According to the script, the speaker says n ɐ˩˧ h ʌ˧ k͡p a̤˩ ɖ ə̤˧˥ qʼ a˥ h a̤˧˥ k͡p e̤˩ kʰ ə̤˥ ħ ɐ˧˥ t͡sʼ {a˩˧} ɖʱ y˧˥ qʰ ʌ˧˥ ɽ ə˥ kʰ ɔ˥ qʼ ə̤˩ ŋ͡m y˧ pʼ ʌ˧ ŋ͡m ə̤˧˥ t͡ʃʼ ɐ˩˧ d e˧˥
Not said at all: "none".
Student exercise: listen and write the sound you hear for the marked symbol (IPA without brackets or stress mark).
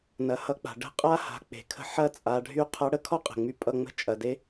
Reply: a˩˧